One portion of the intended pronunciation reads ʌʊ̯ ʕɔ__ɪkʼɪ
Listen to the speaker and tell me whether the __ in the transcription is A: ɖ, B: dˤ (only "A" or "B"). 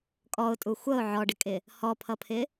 A